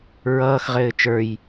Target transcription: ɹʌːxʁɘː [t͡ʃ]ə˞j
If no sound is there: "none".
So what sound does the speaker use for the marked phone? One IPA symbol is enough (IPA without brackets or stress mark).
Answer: t͡ʃ